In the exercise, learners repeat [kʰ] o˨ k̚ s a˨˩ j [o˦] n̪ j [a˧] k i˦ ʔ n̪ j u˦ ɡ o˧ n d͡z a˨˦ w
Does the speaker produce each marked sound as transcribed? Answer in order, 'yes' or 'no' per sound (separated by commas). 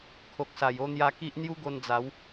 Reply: yes, no, yes